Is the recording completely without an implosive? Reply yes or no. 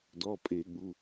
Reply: no